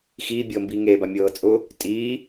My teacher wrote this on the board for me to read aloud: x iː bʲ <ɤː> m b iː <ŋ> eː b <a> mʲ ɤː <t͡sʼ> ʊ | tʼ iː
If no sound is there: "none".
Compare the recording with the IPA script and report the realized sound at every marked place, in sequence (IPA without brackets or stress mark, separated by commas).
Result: ɤː, ŋ, a, t͡sʼ